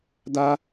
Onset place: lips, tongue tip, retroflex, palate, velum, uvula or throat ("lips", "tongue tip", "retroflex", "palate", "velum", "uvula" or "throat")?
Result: tongue tip